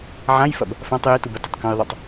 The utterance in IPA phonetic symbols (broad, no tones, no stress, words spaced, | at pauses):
ʕãjfɐb | fãtˤ jitubɐ tətˤkə̃jðˤʌtˤ